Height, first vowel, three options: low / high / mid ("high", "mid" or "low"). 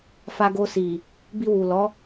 low